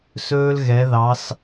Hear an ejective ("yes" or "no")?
no